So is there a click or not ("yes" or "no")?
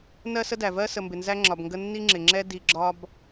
yes